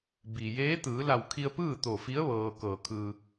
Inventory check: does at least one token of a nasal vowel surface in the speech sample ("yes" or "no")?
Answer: no